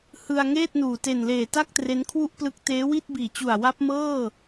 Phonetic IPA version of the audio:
h ɯ˧ a̯ ŋ eː˥˩ t̚ n uː˨˩ t e˨˩ n l eː˨˩ t a˥˩ k̚ t r e˦˥ n kʰ w u˥˩ ʔ p l ɯ˦˥ k̚ t eː˦˥ w i˥˩ t̚ b iː˨˩ t͡ɕ u˨˩ a̯ w a˦˥ p̚ m ɤː˥˩

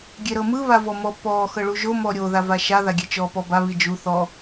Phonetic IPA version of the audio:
ɡʲ e ɾ ɤ m ɯ β a v ɔ m ɔ p ɔ x ɤ ɭ u ʒ o m ɔ ɾʲ o ð a v a ʃ a ð a ɡʲ e t͡ʃ ɔ p ɔ b a β i d͡ʒ u θ ɔ

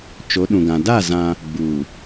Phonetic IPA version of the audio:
t͡ʃ o˨˦ ɗ ũ˨ ɡ ã˨ d a˦˨ z ã˦ | ɡ͡b uː˨

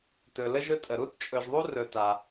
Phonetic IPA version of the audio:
t ɵ˨ l ə˥ ʒ ɵ˦ tʼ ə˩ ɾ u˥ t t͡ʃʼ ɵ˨ ʒ ðˤ u˥ r ɵ˨ t a˩

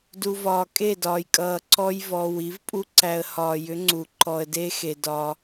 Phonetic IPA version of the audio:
d u˨ v ɒː˨ kʼ e˦˨ d ɒː˨ j kʼ ʌː˨ ǀ ɔ˦ j v ɔ˨ w i˨˦ v pʼ u˦ ǀ æ˨ ə̯ h ɒː˨ j ʏ˨˦ ŋ͡ǀ u˨ ǃ ɔ˨ ə̯ d e˦ x e˨ d ɒː˦

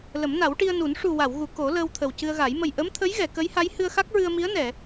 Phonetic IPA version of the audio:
l ə˨˩˦ m n a˨˩˦ w ʈ i˧ ə̯ n u˨˩˦ n ʂ u˨˩ w a˨˩˨ w ɣ u˨˩˨ k o˨˩˦ l əː˧ w t̪ʰ ə˨˩ w c ɨ˧ ə̯ ɣ a˨˩˦ j m ə˨˩ j ʔ ə˧˥ m t̪ʰ ə˧˥ j ɣ ɛ˨˩˨ k ə˧˥ j h a˧˥ j h ɨ˧ ə̯ x a˦˥ k̚ ɹ ɨ˧ ə̯ m i˧˥ ə̯ n ɛ˨˩˨

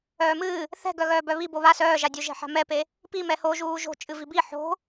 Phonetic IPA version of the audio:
œː m ɨː | θ ɛ̤ ɡ œ ɣ œː b œ β i b o β a s œː ʒ a dʲ o ʒ ɛ̤ ħ a̤ m ɛ p e | p i m ɛ h o ʒ uː ʒ o̤ t͡ʃʼ ɨ v i b i ħ o̤

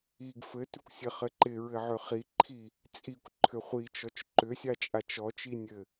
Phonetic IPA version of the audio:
i ɡ f ɘ t ʏ kʷ sʲ ɘ χ ɘ ǃ ɪ ɹ ɘ ʕ ø χ i ǃʰ i | t͡sʼ i kʷ ǃʰ ʏ χʷ i t͡ʃ ɔ t͡ʃ ǃ ʏ sʲ a t͡ʃʼ a t͡ʃ ɔ t͡ʃ i nʲ ɘ

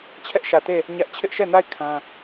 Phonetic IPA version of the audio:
t͡ɕʰ ɛ˦ ʔ ʃ ä˨ t e˦˨ | ɲ ä˦ ʔ t͡ɕʰ ɪ˦ ʔ ʃ ɛ˦˨ n a˦˨ ɪ̯ kʰ ã˦

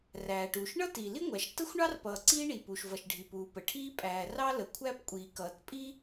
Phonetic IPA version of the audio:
r æː˩ ʈ uː˩ ʃ ɳ ʌ˥ t iː˩ l i˥ ŋʷ æ˩ ʃ t ə˥ xʷ ɳ ɑ˥ r p ʌː˩ ǀ iː˥ ɳ i˩ p u˩ ʃ v ʌ˩ ʃ ɖʱ i˩ p uː˩ p ə˩ ʈʰ iː˥ pʼ æː˩ r ɑ˥ l ə˩ kʷʰ æ˥ p kʷʼ iː˩ k ʌː˩ t pʼ i˥

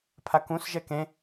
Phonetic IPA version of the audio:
pʰ a k ũ s ʒ ɛ k ẽ

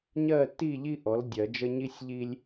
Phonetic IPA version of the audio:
ɲ ɜ˦˨ t i˦˨ ʎ i˥ ʔ ɔ˩˥ l dʲ ɜ˨˩˦ d͡ʒ ə˥ ɲ i˥ sʲ ʎ i˥ lʲ

